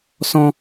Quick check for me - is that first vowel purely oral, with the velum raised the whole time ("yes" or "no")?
no